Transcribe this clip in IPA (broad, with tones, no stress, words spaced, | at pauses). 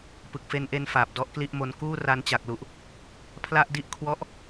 pɯ˨˩k̚fe˧nʔe˧n faː˨˩p̚dɔ˦˥ʔkli˥˩ʔmo˧n kuː˥˩ ra˧nt͡ɕa˨˩k̚lu˨˩ʔ | pʰla˥˩ʔdi˥˩ʔ kʰwɔ˦˥ʔ